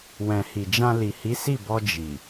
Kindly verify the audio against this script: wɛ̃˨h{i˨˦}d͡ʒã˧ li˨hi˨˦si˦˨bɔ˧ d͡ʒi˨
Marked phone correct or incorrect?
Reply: incorrect